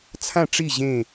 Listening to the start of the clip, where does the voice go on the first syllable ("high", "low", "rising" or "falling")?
falling